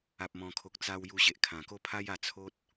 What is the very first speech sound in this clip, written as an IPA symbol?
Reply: a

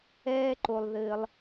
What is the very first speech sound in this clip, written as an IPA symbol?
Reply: ɛː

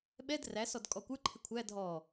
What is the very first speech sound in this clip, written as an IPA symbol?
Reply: ɓ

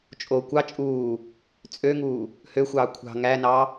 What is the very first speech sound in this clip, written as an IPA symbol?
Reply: t͡ʃʼ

